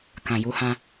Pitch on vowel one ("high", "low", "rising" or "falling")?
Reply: low